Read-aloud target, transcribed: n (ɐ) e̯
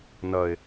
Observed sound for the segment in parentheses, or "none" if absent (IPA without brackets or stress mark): ɐ